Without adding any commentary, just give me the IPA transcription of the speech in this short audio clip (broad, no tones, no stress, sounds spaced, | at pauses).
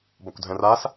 b ɒ kʷ dʱ ɛ̃ r a s